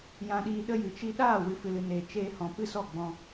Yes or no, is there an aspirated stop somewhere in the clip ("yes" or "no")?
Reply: no